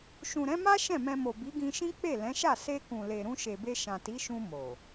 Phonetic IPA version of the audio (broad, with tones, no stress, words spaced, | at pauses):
ʃũ˨ɾɛ̃˨˦ma˦ ʃɛ̃˦˨mɛ̃˧mo˨ bi˨˦ɡĩ˧ʃĩ˦ k͡pe˦˨lɛ̃˨˦ʃa˦˨ se˧kũ˨le˨ ɾũ˧ʃe˨be˧ ʃã˨ti˨˦ʃũ˧ mo˨